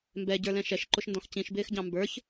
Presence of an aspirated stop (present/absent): absent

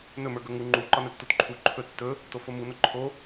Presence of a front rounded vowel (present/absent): absent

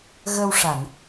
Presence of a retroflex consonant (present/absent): present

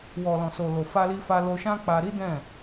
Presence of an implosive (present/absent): absent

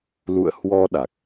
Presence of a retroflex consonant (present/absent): absent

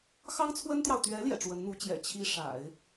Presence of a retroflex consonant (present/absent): present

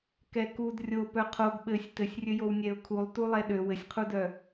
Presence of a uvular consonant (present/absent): present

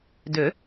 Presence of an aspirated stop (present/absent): absent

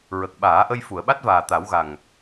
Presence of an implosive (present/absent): present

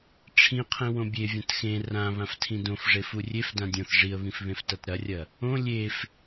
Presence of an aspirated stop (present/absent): present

